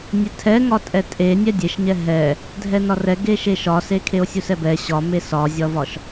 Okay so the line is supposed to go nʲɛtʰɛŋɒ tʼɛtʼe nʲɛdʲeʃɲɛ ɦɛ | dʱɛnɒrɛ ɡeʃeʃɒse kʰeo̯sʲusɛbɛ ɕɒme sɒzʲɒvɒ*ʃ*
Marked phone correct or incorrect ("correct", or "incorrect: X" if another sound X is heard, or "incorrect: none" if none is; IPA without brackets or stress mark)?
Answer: correct